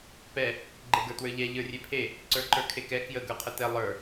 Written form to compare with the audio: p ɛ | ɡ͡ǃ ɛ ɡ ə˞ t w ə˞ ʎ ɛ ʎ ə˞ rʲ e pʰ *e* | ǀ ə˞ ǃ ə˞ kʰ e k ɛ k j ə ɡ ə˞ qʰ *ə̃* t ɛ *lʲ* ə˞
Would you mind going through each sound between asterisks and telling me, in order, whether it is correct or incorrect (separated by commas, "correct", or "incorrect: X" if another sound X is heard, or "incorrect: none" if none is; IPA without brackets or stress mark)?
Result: correct, incorrect: ə, incorrect: lˠ